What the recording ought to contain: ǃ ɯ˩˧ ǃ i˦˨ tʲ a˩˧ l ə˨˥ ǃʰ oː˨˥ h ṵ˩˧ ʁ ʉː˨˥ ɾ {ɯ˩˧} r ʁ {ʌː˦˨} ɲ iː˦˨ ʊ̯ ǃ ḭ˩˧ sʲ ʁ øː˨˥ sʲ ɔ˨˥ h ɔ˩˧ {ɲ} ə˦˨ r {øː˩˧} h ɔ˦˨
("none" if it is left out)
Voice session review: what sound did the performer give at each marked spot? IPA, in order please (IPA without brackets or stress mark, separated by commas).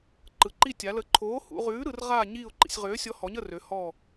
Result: ɯ˩˧, aː˦˨, ɲ, ø˩˧